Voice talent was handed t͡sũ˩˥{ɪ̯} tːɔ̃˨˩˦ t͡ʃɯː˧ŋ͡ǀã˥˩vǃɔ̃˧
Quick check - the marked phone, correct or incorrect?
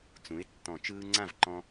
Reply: correct